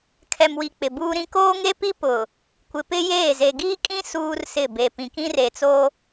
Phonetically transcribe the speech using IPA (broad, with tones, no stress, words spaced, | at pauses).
kʰɛ˨mwi˨ k͡pɪ˨buː˦ɾĩ˦ koː˦ ŋe˦pi˦pʊ˨ | kʷɪ˨pɪ˦jeː˦˨ ze˨ɡiː˦kʼĩ˦ suː˦rsɪ˦˨ be˨pĩ˨kĩ˦ re˨t͡so˦